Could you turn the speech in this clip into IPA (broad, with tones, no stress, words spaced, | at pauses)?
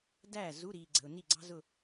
dæː˥˩zu˧˥˧ɾiː˨ɡ͡ǀə̤˨ʊ̯ ni˥˩ɡ͡ǀɑ̤˥zʊ˥˧